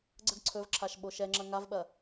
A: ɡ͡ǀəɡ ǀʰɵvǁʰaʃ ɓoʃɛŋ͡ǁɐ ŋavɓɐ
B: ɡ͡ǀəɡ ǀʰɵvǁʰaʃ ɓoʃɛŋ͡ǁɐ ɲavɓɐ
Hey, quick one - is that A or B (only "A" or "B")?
A